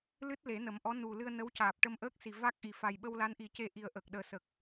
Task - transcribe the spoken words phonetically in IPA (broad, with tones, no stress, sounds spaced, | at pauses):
l ɨ˦˥ t̚ l e˨˩˦ n ə˨˩˦ m ʔ ɔ˧˥ n u˨˩ l ɨ˧ ə̯ n ə˧˥ w c aː˨˩ p̚ ʈ ə˧ m ʔ əː˦˥ k̚ s i˨˩ v a˦˥ k̚ ʔ i˨˩ f a˨˩ j ɓ ə˧ w l a˧˥ n ʔ i˨˩˦ c e˧ ʔ i˨˩ ə̯ ʔ ə˨˩ k̚ ɗ əː˨˩˦ s ə˨˩ k̚